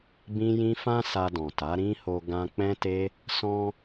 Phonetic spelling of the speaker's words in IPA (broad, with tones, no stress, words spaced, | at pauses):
bĩ˦jĩ˦ fã˧ sa˧dɔ̃˨ ta˨˦ɾĩ˦ ho˧ ɡã˧ k͡pɛ̃˦te˦ | sɔ̃˧